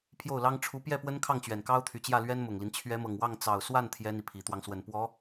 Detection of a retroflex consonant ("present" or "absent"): present